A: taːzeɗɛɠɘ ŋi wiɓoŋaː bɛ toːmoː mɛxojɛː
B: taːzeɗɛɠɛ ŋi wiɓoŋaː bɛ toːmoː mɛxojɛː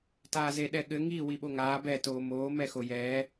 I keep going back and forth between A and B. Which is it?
A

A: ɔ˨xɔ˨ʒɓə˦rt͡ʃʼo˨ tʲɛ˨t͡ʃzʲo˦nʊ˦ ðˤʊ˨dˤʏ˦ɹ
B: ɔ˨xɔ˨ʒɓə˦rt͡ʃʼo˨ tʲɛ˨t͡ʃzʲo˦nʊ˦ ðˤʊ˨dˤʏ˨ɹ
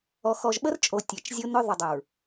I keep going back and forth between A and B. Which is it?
B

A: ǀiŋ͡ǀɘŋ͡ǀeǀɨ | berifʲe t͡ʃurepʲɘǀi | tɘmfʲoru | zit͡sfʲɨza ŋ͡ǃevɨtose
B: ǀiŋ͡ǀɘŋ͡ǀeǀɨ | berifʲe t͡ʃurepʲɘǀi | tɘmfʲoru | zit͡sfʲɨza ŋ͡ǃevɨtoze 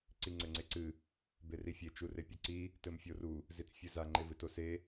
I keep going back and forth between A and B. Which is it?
A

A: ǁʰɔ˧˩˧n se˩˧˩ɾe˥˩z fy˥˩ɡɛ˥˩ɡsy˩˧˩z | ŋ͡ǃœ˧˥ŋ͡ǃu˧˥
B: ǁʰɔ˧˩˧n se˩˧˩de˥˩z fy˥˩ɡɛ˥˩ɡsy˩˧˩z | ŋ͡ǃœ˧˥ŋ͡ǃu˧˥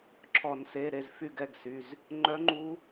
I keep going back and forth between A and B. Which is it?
A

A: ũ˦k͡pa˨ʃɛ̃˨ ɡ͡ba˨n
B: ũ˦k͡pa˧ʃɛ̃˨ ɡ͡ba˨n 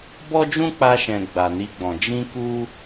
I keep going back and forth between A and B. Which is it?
B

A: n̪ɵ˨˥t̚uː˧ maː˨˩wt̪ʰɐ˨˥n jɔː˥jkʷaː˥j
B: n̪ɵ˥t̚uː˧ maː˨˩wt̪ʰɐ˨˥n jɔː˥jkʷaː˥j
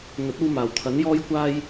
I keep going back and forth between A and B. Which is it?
A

